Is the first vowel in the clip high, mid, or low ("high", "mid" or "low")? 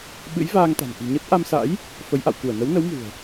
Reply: high